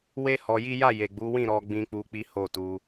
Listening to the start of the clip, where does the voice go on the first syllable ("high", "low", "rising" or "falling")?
high